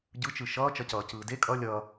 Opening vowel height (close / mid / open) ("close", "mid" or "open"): close